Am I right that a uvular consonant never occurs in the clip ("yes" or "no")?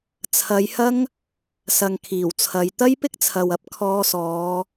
yes